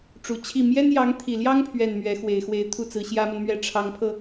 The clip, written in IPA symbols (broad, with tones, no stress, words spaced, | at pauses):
ʈ͡ʂu˨˩t͡ɕʰi˥˩ mjɛ˥njɑ˧˥ŋt̪ʰi˨˩ljɑ˥ŋ pʰɥɛ˥˩nmɥɛ˧˥ xwe˨˩ɪ̯xwe˧˥ɪ̯t̪ʰu˥˩t͡sɹ̩˧˥ ɕjä˥mə˨nmɥɛ˥˩ ʈ͡ʂʰɑ˧˥ŋpʰɤ˧